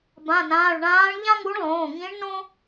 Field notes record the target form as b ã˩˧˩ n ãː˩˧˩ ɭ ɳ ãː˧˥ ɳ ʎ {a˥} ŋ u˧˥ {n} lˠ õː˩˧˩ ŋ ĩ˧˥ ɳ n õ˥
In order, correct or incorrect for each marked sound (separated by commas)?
incorrect, incorrect